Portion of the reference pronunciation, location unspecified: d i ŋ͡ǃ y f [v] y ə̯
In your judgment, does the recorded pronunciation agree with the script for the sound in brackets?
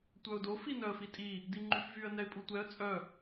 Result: yes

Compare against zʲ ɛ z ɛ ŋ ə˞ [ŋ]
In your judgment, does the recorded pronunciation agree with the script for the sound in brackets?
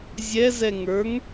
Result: yes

